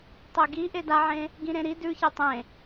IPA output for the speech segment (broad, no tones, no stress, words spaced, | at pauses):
tˤeɡi ʔedaʕẽ | ɡĩɾẽɾi dʉçe tˤẽ